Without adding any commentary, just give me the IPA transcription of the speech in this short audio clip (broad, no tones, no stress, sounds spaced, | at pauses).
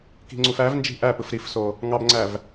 k i̤ ŋ͡ǀ u f æ v n d͡ʒ i̤ ʔ æ p ɯ f ɾ i f s o | ŋ ɑ b ŋ͡ǀ æ v